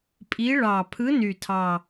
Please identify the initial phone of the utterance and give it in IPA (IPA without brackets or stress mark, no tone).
pʼ